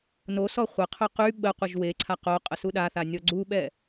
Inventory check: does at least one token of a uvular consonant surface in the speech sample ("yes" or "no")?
yes